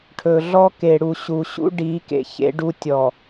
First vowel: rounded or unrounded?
rounded